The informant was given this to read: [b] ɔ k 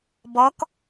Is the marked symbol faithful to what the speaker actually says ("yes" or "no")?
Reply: yes